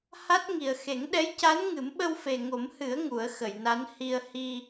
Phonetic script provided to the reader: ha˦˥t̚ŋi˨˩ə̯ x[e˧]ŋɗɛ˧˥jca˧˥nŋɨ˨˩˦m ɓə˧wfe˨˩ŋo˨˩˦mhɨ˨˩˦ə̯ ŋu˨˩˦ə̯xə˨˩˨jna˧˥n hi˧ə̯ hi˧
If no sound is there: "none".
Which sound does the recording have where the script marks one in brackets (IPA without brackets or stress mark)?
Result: e˨˩˦